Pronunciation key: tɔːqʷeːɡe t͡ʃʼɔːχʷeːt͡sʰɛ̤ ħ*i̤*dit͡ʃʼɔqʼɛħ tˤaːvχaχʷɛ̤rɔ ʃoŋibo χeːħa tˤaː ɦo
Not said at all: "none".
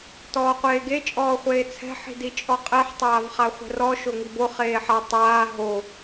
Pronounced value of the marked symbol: i̤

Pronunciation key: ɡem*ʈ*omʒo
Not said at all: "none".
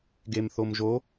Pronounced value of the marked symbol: θ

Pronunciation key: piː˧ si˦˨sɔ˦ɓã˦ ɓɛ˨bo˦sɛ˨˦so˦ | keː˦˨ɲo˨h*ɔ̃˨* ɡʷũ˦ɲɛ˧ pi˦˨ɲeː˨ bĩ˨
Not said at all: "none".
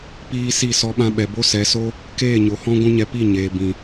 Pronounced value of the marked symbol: ɔ̃˦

